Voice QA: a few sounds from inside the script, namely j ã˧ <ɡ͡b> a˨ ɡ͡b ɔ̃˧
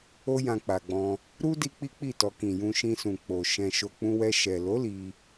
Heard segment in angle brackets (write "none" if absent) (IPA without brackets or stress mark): k͡p